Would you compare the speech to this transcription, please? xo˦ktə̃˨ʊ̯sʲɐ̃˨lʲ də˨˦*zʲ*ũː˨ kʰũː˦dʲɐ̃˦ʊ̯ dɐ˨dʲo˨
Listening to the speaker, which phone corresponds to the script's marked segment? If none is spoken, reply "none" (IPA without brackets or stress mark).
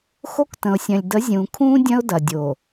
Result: zʲ